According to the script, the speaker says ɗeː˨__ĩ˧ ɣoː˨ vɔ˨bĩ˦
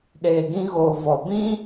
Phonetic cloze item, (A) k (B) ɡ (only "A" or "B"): B